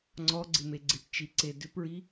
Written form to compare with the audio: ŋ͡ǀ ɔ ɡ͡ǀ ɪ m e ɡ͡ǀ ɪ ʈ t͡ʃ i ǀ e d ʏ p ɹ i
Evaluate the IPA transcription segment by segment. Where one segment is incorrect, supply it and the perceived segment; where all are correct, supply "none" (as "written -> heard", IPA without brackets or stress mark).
none